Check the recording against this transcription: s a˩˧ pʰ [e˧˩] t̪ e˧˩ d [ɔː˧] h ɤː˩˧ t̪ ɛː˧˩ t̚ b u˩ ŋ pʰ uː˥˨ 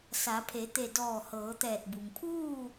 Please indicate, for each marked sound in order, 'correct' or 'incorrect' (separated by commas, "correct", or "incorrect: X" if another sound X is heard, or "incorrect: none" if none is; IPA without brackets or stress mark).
incorrect: e˩˧, incorrect: ɔː˧˩